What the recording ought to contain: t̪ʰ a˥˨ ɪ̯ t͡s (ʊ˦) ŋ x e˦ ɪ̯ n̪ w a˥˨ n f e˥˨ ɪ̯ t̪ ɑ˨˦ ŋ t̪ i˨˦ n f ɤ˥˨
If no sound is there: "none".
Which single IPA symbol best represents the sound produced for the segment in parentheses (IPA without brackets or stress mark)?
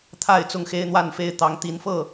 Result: ʊ˦